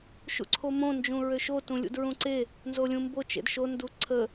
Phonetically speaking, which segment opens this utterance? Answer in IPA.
ʃ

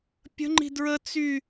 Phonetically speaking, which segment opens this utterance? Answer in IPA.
pʲ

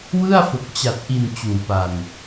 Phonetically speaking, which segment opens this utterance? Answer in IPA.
w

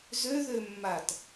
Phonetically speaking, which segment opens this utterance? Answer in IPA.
z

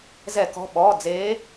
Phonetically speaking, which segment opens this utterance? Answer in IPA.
z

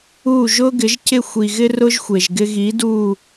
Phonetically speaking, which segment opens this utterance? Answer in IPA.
uː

